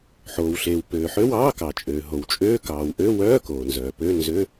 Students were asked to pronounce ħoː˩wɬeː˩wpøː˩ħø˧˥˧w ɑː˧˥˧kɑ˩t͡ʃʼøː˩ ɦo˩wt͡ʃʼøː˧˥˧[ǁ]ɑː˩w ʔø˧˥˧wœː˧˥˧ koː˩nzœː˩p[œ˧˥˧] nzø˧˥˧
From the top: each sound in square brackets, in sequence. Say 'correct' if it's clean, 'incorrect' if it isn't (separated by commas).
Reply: incorrect, incorrect